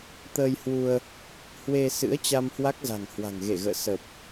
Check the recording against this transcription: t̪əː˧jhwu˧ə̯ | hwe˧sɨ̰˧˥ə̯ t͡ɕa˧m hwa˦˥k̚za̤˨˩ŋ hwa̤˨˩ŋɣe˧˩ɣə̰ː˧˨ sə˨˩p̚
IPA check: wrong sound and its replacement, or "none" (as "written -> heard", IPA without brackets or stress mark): none